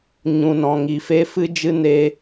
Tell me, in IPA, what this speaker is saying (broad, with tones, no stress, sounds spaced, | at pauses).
ɲ ũ˧ n ɔ̃˧ ŋ i˧ f e˦ f ɨ˦ d͡ʒ ɨ˦ n eː˦